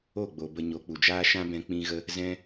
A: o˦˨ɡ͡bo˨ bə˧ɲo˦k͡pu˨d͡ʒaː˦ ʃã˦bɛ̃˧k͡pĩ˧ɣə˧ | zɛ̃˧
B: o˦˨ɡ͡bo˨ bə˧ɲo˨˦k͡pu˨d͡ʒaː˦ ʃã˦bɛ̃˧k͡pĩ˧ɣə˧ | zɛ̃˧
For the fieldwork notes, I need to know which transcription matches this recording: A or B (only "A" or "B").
B